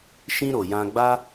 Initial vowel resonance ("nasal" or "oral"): nasal